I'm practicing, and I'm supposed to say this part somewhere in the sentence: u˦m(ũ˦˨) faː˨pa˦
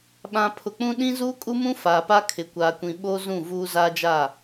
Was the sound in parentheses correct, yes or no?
no